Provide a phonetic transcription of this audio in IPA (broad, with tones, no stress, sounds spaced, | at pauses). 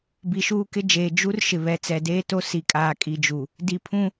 b i˨ ʃ uː˦ k ɪ˦ d͡ʒ eː˨ d͡ʒ u˦ r ʃ ɪ˨ β ɛ˨˦ t͡s ɛ˨ d eː˦ t o˦ s i˨ kʼ aː˨ kʼ i˨ d͡ʒ u˨ | d i˨ pʰ ũ˦